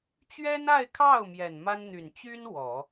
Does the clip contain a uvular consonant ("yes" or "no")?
no